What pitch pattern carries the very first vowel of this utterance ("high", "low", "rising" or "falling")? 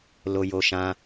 low